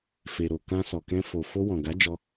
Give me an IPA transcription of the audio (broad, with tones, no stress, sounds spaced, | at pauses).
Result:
f e˨ ɾ o˨ k ã˧ s ɔ˨ k ɛ̃˧ f o˨ f o˧ w ɔ̃˨ ɡ a˨˦ d͡ʒ ɔ˧